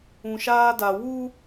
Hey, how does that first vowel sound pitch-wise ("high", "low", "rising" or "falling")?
low